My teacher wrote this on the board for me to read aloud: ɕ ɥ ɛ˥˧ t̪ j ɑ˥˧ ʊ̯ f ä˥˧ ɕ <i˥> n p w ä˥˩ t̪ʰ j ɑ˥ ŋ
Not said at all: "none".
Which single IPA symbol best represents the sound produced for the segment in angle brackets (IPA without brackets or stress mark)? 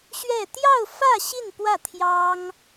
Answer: i˥˧